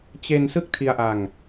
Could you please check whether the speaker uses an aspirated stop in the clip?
yes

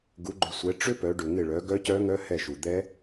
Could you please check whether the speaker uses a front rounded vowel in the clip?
yes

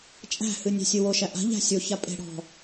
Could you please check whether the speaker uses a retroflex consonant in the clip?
yes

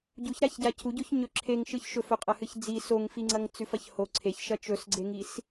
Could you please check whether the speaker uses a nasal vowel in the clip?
no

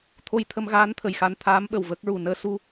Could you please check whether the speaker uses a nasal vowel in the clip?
no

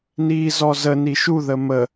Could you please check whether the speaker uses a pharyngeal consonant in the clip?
no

